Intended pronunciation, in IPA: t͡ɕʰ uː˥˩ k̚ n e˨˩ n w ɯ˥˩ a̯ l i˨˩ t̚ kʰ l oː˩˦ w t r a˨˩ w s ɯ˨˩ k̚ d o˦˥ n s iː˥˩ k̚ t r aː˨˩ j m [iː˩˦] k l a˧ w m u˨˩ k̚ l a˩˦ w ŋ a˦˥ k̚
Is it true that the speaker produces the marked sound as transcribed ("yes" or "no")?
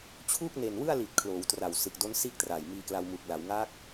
no